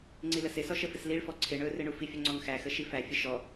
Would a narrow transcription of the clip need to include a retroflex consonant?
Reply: yes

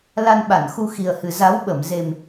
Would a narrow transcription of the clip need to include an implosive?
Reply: yes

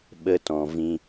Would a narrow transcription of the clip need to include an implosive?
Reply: yes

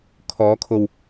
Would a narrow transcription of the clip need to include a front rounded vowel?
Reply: no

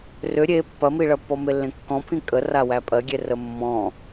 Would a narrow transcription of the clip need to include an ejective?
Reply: yes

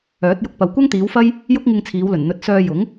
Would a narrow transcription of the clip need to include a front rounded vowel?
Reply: yes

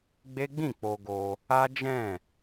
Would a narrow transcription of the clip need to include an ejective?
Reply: no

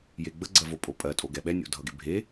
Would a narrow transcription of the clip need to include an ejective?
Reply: yes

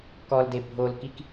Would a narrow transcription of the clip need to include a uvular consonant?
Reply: no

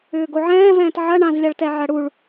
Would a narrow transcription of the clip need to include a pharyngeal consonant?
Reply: yes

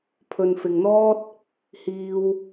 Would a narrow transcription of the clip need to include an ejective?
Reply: no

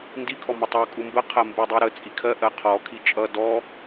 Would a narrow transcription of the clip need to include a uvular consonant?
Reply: yes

